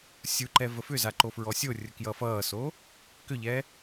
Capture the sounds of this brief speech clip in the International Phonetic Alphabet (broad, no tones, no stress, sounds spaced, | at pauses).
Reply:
sʲ u ǃ ɛ v ə f ʏ z a ǃ o f ɹ ɔ sʲ o rʲ ə k j ʌ f ʌː s o | k ʏ ʎ ɛ